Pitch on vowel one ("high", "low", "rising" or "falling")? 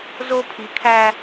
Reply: high